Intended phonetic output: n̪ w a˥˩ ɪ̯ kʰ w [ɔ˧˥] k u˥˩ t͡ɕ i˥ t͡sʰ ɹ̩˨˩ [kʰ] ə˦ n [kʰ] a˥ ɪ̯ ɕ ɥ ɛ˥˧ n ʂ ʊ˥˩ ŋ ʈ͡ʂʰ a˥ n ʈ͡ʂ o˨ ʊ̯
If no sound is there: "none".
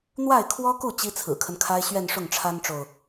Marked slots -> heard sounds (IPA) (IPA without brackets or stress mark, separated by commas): ɔ˥, kʰ, kʰ